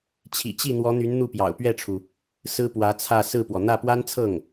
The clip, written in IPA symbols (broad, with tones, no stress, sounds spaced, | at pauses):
t͡ɕʰ ḭ˨˩ t͡ɕ i˥˩ n̪ w ɔ˧˥ n̪ y˧˥ n n̪ u˥˩ p j ɑ̰˨˩ ʊ̯ p ɥ ɛ˥˩ ʈ͡ʂʰ u˩ | s ɹ̩˥ p w ä˧˥ t͡sʰ ä˥˧ s ɹ̩˥˩ p w ɔ˩ n̪ ä˥˩ p w a˥ n t͡sʰ ɤ˥˩ ŋ